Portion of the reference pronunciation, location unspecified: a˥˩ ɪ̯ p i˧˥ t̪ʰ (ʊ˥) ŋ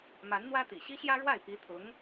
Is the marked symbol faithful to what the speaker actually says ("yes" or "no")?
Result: no